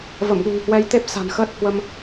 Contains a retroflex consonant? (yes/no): no